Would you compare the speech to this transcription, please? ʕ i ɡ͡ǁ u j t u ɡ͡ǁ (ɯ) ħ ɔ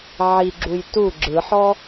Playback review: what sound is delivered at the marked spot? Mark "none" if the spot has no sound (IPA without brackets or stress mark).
ɯ